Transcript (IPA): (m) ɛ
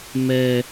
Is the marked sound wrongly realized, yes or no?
no